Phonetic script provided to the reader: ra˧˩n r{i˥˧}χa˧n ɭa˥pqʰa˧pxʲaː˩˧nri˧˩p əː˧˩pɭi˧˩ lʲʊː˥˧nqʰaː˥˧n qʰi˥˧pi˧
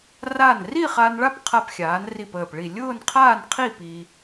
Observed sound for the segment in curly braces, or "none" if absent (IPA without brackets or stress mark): i˥˧